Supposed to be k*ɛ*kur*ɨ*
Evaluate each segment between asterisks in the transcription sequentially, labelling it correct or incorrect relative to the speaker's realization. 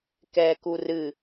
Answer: incorrect, correct

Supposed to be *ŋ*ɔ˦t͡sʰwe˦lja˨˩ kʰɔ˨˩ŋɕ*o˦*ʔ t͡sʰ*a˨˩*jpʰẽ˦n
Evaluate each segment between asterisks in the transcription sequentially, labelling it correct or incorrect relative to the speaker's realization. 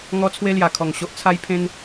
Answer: correct, correct, incorrect

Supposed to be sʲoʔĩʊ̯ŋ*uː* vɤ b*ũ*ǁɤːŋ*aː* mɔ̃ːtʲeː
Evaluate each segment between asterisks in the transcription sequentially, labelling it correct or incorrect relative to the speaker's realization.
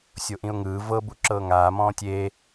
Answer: incorrect, incorrect, correct

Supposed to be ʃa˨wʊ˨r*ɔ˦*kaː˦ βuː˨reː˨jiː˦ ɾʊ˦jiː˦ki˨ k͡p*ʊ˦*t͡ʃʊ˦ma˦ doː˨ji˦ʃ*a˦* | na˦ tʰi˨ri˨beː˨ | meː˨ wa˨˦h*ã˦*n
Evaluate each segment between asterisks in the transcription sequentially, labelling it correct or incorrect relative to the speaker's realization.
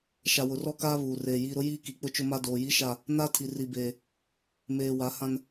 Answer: correct, correct, incorrect, correct

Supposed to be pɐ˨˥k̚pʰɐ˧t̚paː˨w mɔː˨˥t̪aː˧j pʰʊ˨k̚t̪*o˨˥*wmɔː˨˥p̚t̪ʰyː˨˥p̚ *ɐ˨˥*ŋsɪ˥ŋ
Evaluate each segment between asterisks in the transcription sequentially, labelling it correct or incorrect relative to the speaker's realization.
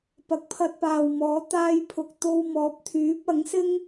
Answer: incorrect, correct

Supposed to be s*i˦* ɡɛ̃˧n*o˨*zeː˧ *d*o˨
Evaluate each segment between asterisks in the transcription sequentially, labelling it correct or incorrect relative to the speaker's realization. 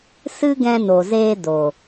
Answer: incorrect, correct, correct

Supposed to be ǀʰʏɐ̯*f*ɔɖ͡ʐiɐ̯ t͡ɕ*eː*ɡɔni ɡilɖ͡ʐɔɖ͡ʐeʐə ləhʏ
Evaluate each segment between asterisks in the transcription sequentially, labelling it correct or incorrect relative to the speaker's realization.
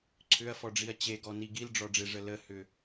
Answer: correct, incorrect

